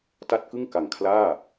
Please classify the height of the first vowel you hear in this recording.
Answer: low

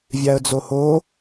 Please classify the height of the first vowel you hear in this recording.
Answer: low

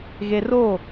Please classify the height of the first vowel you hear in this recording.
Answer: mid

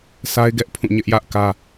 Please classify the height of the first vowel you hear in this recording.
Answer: low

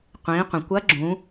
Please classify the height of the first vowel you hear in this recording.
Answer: high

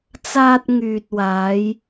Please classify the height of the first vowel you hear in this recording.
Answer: low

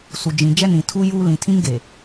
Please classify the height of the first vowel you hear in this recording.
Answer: high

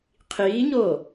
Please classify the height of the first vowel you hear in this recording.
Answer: high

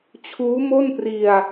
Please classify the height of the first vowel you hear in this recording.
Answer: high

